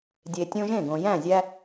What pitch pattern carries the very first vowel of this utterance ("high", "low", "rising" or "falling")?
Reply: low